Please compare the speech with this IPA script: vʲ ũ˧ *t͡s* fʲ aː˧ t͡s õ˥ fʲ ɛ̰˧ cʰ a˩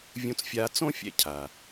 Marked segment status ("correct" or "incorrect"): correct